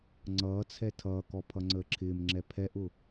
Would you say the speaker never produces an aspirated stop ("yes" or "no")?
no